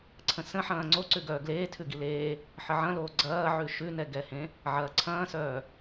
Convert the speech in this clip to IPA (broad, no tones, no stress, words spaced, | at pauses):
ǀʰə̃sə̃ ħɐ̃ːŋ͡ǀo ǀʉɡœːɡleː tʰʉɡileː | ħəʕɐ̃loː ɡ͡ǀɐːʕʉ ʃʉnɛɡɛhẽ | ʕɐːǀʰɐ̃ːsœː